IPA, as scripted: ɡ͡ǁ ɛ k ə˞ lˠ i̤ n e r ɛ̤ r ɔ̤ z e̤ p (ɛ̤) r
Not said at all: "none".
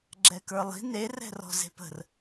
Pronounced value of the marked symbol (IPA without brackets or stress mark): ə̤